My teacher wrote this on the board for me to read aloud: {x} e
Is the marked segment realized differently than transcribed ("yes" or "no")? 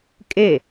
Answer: yes